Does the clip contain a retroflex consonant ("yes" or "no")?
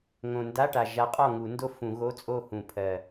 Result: yes